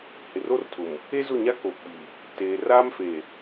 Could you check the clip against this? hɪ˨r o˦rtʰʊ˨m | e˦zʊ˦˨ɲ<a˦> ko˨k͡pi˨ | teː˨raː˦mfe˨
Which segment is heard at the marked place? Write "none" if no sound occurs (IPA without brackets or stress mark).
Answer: a˦